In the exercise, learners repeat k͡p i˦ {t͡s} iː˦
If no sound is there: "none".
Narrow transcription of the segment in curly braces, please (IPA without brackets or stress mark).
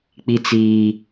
t͡s